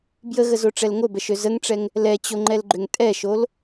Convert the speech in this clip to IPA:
b j ə ɣ ə z o ʈ͡ʂ ɛ l ŋ o b ɛ ʃ ø z ə ŋ ʈ͡ʂ ɛ ŋ | l ɛ t͡ɕ o ŋ͡ǃ ɛ l ɡ͡ǃ ʏ ŋ tʼ ɛ ʃ o l

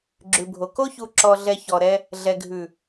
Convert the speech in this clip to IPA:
ɡ͡ǁ ʉ˨ bʱ o˨ k o˦ ç u˨ ǁ ɔ˨ ɮ ɛ˨ ç ɔ˨ ɾ ɛ˦ | ɮ ɛ˨ ɡʱ ʉ˨

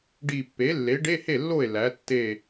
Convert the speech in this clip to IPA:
ɖ i˧˩ pː e˩˥ lː e˩˥ ɖ e˧˥˧ h e˥˩ lː o˥˩ e̯ l æ˩˥ tː e˧˩

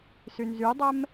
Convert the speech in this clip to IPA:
s y n z y dˤ ɛ m

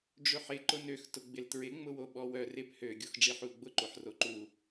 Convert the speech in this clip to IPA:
ɖ͡ʐ ʏ ħ ɪ ǃ ʊ n ø x t ʊ ɡ͡b ɪ l t ɹ ɪ ŋ͡m ʊ w o ɓ ɔ w œ r ɪ p h ø ɡʲ o x ɖ͡ʐ i ħ u l ɡ͡b ʊ ǃ o ħ r o ǃ u

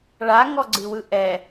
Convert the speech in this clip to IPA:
ɭ a ŋ ɔ ɡ͡ǀ ɨ w ɯ ʔ ɛ

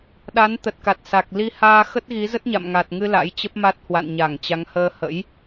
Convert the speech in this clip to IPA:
ɗ a˨˦ n t̪ ə˨˩ t̚ k a˨˩ t̚ s a˨˩ k̚ l i˧ h aː˧ x ə˦˥ t̚ ɣ i˨˦ z ə˦˥ t̚ ɲ a̰˧˨ m ŋ a˨˩ t̚ ŋ ɨ˧ l a̰˧˥ j t͡ɕ ə˦˥ p̚ m a˦˥ t̚ h w a̰˧˨ n ɲ a˧˩ ŋ t͡ɕ a˨˦ ŋ h əː˧ h ə̰˧˥ j

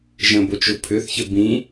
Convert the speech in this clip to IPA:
ʒ ə̃ b o t͡ʃ ʊ pʰ ʏ θ ç ə b ĩ

